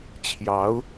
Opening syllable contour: rising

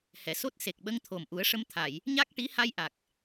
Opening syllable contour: low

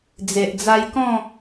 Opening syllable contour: low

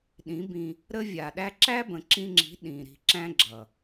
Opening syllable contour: rising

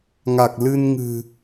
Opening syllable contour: low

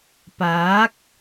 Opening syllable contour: rising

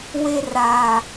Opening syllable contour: high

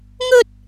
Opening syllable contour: high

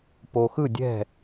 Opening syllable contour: low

